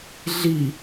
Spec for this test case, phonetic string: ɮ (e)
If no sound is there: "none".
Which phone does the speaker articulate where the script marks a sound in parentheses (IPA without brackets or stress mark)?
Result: i